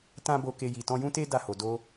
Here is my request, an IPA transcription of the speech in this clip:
t ã˦ b o˧ k e˧ j i˨ t ɔ̃˧ j ũ˦ t e˦ d a˦˨ h o˨ d o˧

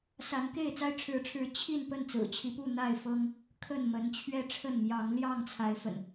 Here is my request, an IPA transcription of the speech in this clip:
s a˨˦ n k e˥˨ ɪ̯ t͡s a˦ ɪ̯ ʈ͡ʂʰ ɻ̩˨˦ ʈ͡ʂʰ ɻ̩˨˦ t͡ɕʰ i˥˨ n p ə˥˨ n t͡s ɹ̩˨˩ t͡ɕʰ i˨˦ p u˥˨ n̪ a˥˨ ɪ̯ f ɤ˦ ŋ | kʰ ə˥˨ n m ə˨˦ n t͡ɕʰ ɥ ɛ˦ ʈ͡ʂʰ ə˥˨ n m j ɑ˨˦ ŋ l j ɑ˥˨ ŋ t͡sʰ a˨˦ ɪ̯ f ə̰˨˩ n

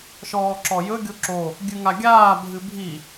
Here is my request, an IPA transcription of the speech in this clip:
ʃ ɔː ǁ ɔ j ɵ ɡʲ o ǁ o | ɡʲ ɨ ŋ a ɡʲ aː bʱ ɨ bʱ i

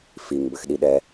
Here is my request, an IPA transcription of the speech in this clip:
f i ŋ b ɘ x ɗ i ɗ ɛ

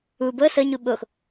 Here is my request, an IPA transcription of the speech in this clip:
u b ɤ s ɤ ɲ u ɓ o x

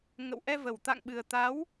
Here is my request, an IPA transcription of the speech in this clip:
ŋ ə̰˧˨ w ʔ ɛ˧ v ə˨˩ w t̪ a̰˧˨ ŋ ɓ ɨ˨˩ ə̯ t̪ a˨˦ w

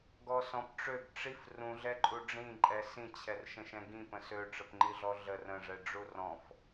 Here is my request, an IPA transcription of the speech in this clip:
ɡ ɔ s ɔ̃ p ʈ͡ʂ ø ɡ ʈ͡ʂ i f r ũ ɮ ɛ ǃʼ u ɖ͡ʐ ĩ ǃʼ ɛ s ĩ t͡ɕʰ ɛ r ʃ ə̃ ʃ ɛ̃ ɡ ĩ p ə̃ s ø ʈ͡ʂ ə p ŋ͡ǃ i ɮ ɔ ɮ ə r ə̃ ʐ ɛ ɖ͡ʐ u r ɔ̃ f

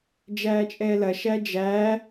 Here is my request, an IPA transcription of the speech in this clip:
d͡ʒ æː t͡ʃʼ ɛː l ɐ ʃ æ d͡ʒ æː

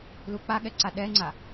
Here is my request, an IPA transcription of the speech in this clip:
l u k͡p a ɠ ɛ ǀ a ɗ ɛ ŋ͡ǀ a

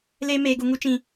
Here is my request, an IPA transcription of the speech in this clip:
l eː˧ m eː˨ ɡ u˨ ŋ u˧ t͡ʃ ĩ˨

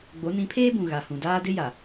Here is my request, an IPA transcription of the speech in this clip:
ɡ͡b o˨˦ n ĩ˨˦ pʰ eː˦ b ũ˨ ɣ a˨ h ũ˨ d aː˦ d ɪ˦ j a˨

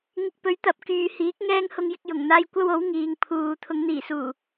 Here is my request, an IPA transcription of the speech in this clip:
ŋ ɪ˧ k̚ p ɵ˨˥ ɥ t̪ ɐ˨˥ p̚ k yː˨ h iː˨˥ k̚ ŋ ɛː˥ ŋ h ʊ˧ ŋ j ɪ˧ k̚ j ʊ˨˩ ŋ n̪ aː˧ j kʷ ɐ˥ w o˨˥ w ŋ iː˨ ŋ pʰ uː˨ t̪ʰ ʊ˨˧ ŋ n̪ iː˨˩ s uː˨˩

